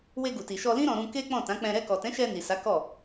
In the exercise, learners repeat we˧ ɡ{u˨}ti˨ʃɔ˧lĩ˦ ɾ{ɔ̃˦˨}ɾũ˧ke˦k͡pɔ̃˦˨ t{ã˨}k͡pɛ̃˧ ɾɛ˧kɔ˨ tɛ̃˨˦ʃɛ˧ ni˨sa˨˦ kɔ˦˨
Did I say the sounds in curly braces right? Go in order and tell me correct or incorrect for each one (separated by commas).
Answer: correct, incorrect, incorrect